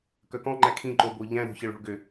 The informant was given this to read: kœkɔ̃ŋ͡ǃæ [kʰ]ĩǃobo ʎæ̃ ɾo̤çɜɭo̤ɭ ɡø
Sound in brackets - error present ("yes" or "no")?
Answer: no